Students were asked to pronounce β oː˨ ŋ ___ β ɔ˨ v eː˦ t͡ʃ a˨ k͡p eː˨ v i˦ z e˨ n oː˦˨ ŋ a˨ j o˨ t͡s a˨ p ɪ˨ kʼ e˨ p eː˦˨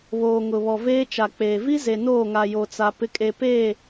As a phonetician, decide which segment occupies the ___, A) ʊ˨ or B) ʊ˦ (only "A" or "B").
A